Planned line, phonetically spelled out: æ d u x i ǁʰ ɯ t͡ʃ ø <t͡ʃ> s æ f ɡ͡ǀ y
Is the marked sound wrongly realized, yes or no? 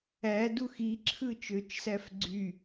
no